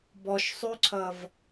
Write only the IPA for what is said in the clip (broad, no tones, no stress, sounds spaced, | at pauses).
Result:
b ɔ ʃ sˤ ʉ ǀʰ ʌ v